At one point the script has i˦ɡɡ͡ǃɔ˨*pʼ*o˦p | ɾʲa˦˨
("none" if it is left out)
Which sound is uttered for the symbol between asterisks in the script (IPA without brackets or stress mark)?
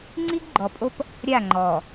pʼ